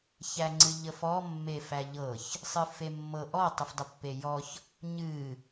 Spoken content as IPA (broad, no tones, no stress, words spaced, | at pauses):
çæŋ͡ǀɨʎəfɔ mːefæʎɤç | sˤɨfemːɤ ʔɔ tˤɨfdˤəpːejɔç | ɲɨ